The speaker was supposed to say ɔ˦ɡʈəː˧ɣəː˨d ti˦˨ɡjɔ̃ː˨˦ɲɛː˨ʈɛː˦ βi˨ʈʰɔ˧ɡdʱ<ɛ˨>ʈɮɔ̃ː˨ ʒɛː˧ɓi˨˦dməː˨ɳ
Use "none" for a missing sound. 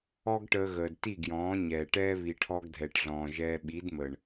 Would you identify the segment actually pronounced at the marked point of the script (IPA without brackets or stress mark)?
ɛ˨